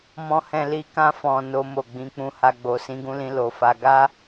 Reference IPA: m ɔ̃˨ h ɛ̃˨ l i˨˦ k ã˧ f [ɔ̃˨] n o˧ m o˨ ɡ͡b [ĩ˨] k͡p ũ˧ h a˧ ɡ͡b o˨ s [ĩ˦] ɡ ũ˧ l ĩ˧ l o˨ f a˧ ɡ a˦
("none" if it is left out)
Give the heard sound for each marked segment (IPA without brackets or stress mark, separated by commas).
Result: ɔ̃˨, ĩ˨˦, ĩ˧